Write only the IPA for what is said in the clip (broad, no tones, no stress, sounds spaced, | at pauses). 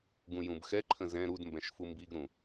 ɡ ũ j ũ b x ɛ ǃʰ ə̃ z ɛ̃ ɾ u d m b ɛ̃ ʃ f u m b i ɡ ɾ ũ